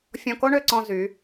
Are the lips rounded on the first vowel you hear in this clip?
yes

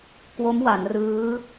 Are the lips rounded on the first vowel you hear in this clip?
yes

